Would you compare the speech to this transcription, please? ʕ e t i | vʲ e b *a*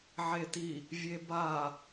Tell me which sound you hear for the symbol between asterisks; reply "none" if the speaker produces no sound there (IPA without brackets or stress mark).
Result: a